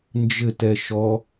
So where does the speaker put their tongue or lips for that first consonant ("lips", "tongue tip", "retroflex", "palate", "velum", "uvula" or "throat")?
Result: tongue tip